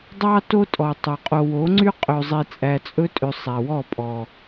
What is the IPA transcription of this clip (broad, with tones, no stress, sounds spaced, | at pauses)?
dˤ ɑ˦ t o˦ tʼ ɔ˨ tˤ ɵ˨ qʼ o˨ w o˨˦ ŋ͡ǀ y˦ qʼ ø˨ zˤ i˨ t͡sʼ æ˨ t͡sʼ ɵ˦ tʼ ø˨ sˤ æ˨ w ɔ˦˨ pʼ ɔ˨